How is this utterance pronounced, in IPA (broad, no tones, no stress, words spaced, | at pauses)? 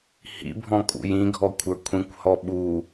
hḭbʱɔ̃kʼṵj ĩɡʱɔkʷʰə˞ kʷʰĩkʷhɔ ɓu